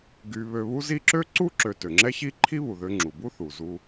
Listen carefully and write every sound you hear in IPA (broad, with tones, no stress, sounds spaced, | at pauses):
ɡ y˨ β ø˨ β u˦ z i˦ ǁ ø˥ ǀ u˥ ǁ ø˨ t ø˩ ŋ͡ǁ ɛ˦ ç i˦ ǃʰ i˦ β u˩ ð ø˨ ŋ͡ǁ u˩ b u˥ θ u˩ z u˨